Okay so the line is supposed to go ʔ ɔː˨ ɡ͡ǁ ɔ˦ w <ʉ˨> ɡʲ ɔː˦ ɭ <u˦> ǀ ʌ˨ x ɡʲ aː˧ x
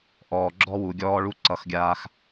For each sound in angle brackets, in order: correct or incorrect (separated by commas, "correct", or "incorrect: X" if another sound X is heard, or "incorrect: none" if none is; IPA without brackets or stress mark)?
incorrect: u˨, correct